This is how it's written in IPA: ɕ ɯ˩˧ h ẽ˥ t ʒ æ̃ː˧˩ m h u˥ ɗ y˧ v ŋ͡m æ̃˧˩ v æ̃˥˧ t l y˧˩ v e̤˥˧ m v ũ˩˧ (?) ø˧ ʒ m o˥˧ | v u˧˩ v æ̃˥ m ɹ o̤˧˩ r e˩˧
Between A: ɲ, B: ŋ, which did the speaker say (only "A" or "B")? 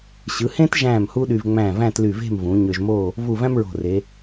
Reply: A